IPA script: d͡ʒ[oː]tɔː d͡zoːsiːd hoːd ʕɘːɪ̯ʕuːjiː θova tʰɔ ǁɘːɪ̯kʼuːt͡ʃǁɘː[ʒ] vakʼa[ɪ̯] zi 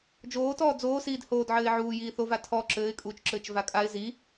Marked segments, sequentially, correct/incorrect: correct, incorrect: t͡ʃ, correct

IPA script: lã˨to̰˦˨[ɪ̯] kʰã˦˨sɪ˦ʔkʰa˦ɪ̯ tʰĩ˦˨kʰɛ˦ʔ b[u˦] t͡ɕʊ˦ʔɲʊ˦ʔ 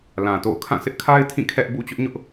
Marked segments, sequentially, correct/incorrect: incorrect: ʊ̯, incorrect: ṵ˦˨

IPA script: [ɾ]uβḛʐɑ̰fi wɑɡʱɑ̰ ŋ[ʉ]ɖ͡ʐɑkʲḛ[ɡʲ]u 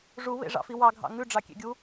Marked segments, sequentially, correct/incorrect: incorrect: ʐ, correct, correct

